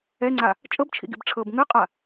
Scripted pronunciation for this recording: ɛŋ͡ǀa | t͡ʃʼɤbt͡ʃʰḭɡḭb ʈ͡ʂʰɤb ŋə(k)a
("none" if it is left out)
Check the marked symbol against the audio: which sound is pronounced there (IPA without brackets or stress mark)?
qʼ